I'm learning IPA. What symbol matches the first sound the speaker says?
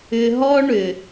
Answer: ʏ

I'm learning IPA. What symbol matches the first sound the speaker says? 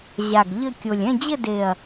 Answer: ʑ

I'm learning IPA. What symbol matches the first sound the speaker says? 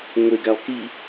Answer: ŋʷ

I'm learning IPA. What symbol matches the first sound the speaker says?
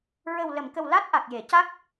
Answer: ɹ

